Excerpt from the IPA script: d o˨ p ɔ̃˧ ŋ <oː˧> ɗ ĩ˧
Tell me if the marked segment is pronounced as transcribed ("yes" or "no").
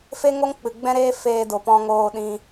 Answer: yes